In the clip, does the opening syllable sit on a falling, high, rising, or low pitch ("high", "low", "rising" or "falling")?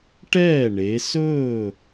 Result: falling